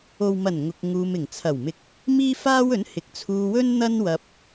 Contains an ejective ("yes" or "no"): no